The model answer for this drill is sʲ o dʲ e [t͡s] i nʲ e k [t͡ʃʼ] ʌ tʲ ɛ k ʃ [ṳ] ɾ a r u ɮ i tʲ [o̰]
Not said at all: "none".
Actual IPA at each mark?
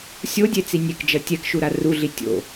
t͡s, d͡ʒ, u, o̰

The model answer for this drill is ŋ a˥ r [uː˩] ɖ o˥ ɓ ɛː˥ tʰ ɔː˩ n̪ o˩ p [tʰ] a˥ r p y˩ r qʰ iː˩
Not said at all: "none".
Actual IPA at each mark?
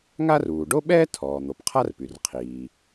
uː˩, qʰ

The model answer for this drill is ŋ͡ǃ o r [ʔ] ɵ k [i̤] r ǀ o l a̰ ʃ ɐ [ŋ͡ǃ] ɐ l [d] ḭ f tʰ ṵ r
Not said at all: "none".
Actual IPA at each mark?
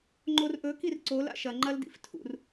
ʔ, i, ŋ͡ǃ, d

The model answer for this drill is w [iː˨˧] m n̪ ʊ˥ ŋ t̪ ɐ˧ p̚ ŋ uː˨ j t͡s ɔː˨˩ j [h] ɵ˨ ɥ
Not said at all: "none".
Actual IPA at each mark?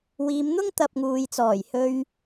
iː˨˧, h

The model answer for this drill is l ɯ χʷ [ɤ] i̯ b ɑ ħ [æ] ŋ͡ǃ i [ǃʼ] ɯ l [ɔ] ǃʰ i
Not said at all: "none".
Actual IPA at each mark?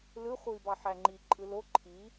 ɯ, æ, ǃʼ, o

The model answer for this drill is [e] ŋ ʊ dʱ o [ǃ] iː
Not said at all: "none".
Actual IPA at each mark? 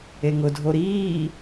e, ɾ

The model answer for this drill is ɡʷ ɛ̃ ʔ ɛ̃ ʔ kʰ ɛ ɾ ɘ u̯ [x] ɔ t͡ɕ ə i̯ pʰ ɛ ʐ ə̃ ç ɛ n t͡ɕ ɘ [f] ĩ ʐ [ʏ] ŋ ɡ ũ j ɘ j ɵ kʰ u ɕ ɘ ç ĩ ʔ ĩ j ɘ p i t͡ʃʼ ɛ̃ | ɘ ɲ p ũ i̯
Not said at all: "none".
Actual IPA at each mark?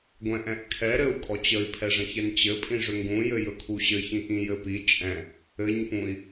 kʼ, pʼ, ʏ

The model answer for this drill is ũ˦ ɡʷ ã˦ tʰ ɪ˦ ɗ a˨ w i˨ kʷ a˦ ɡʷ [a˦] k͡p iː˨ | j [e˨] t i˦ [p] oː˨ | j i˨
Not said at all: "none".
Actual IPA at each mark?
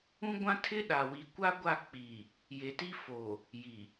a˦˨, e˨, f

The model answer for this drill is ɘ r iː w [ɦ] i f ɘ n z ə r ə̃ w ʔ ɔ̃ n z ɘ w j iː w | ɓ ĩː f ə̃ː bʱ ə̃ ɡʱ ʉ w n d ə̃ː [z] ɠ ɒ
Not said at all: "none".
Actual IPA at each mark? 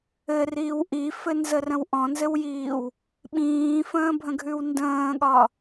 ʔ, none

